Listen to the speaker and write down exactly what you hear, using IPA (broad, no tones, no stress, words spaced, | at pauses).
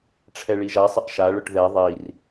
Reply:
ʈ͡ʂʰɛɭiʒasˤɪʔ ʃaɭʊʈ ðɛ ðˤir